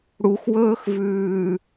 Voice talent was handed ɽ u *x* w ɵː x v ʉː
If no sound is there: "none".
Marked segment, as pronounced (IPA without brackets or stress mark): x